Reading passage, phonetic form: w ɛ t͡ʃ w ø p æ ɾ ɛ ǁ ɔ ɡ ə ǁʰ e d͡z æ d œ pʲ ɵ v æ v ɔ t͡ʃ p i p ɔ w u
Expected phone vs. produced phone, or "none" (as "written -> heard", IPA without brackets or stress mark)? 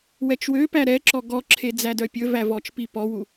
ə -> ɔ